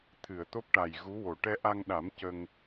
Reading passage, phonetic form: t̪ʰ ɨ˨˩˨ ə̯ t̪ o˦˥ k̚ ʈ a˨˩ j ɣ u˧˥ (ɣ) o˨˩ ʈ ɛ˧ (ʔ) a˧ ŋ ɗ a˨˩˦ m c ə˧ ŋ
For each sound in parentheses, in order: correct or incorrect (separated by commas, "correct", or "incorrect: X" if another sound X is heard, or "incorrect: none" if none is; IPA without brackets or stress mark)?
incorrect: w, correct